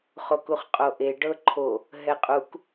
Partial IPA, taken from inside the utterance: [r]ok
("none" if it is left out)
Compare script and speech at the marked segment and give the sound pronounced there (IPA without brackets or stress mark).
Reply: χ